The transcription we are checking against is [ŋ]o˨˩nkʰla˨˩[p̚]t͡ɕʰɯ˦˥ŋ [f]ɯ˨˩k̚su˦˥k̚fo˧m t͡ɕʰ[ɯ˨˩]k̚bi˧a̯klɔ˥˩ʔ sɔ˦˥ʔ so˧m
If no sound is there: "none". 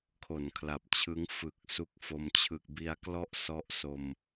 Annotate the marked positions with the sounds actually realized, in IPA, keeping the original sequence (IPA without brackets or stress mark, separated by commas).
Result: kʰ, p̚, f, ɯ˨˩